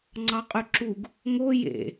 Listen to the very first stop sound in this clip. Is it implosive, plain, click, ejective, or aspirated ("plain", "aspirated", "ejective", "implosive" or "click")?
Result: click